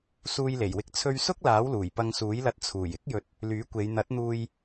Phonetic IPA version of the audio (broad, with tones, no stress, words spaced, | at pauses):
suː˧jle˨˩jwɪ˧k̚ t͡sʰɵ˧ɥ sʊ˥k̚laː˨˥wluː˨˩j pɐ˧ŋsuː˨˥jlɐ˧t̚ t͡sʰuː˨˩j ɪ˨˥k̚jɵ˨˥t̚ | lyː˨˥kʷe˨˧j n̪ɐ˨˥t̚n̪uː˧j